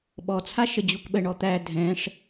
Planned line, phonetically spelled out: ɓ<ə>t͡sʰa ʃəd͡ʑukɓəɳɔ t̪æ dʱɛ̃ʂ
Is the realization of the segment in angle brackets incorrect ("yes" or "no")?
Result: yes